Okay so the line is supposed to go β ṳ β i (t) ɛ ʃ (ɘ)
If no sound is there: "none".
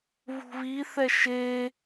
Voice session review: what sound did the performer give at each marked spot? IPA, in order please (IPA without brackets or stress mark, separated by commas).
θ, e